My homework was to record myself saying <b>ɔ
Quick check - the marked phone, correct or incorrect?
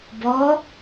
correct